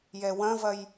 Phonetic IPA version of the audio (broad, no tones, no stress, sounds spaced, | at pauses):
j ɛ w ɐ̃ v ɐ j